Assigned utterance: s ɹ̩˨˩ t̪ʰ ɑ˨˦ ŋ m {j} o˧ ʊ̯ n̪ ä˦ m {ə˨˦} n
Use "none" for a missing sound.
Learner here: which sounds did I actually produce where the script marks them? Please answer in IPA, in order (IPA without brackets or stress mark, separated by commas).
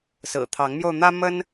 j, ə˦